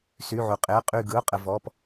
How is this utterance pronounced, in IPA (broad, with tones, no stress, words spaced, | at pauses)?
sy˧˥˧ʕu˧ qʼɪ˧˥˧ə̯qʼy˥˧ ɡɯ˧˥˧ʊ̯qʼə˧ vɔ˧˥˧p